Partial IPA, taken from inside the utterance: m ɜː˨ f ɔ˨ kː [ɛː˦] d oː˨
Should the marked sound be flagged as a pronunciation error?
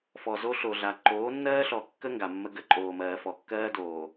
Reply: yes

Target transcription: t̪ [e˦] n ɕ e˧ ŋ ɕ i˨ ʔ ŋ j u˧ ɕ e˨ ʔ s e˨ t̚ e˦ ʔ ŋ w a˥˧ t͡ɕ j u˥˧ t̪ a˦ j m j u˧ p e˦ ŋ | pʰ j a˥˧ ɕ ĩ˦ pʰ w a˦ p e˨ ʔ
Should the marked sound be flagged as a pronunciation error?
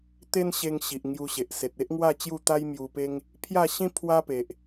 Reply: no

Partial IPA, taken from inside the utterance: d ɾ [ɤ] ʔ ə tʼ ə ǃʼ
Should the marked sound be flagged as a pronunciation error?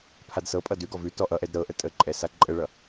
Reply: no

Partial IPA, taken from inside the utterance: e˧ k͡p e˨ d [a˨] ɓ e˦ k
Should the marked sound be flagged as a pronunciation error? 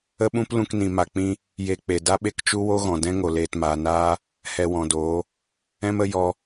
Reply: yes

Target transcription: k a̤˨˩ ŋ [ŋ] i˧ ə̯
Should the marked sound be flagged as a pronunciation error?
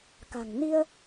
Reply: yes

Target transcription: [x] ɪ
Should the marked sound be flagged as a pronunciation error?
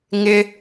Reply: yes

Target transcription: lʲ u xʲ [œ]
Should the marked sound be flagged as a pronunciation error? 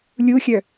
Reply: no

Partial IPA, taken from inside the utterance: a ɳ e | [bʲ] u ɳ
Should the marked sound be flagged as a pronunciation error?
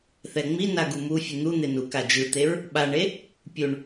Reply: yes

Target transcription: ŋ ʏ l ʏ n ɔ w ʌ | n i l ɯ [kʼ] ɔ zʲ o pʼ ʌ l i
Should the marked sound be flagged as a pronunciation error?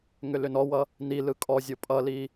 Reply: no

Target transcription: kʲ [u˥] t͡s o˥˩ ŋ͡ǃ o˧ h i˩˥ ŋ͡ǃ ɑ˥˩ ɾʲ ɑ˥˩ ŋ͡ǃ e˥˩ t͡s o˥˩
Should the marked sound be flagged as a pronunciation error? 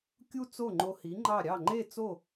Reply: no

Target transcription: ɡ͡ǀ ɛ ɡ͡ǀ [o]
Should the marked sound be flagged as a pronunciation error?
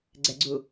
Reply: yes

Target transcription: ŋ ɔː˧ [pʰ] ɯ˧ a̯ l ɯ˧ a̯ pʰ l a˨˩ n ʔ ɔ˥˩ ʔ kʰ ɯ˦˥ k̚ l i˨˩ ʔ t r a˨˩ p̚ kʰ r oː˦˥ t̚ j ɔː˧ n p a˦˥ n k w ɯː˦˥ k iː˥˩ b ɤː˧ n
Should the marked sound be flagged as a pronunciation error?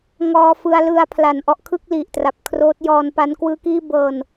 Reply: yes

